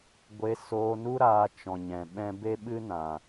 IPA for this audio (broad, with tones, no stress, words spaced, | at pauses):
ɡʷe˧ soː˧nu˦ɾaː˧t͡ʃɔ̃˨ ɲɛ̃˨ɓɛ̃˦ be˦ɓɨ˦nã˨